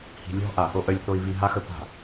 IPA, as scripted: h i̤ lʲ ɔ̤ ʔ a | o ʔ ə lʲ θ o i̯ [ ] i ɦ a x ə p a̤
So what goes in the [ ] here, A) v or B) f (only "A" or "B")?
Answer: A